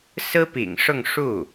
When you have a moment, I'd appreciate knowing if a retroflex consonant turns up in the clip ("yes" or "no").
yes